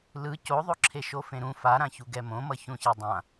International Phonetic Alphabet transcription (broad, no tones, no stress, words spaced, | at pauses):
lɯ coðˤo ǁʰeʃofẽɾũ faɾãçuɡɛ mõmʌ çũçɛdˤã